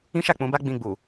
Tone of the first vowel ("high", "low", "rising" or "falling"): high